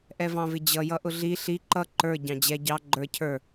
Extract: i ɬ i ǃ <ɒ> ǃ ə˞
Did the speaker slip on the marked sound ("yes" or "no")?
yes